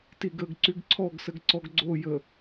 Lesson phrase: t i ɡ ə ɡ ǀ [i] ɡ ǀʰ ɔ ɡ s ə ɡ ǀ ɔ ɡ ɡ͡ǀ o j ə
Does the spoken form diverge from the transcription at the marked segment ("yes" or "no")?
yes